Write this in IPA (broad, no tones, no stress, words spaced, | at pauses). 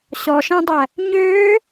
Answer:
ɕɔʃæ̃dˤæ | ɲøː